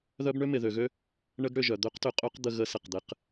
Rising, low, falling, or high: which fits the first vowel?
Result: high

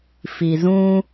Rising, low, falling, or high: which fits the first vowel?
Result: low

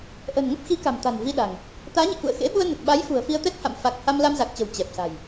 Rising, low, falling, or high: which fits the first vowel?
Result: low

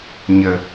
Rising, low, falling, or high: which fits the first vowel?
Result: low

